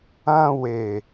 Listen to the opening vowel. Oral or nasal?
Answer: nasal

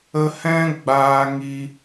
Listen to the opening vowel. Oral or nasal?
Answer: oral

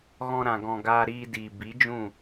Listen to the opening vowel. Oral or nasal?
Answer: nasal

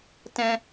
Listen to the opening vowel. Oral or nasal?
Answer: nasal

